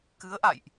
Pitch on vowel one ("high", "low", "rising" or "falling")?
rising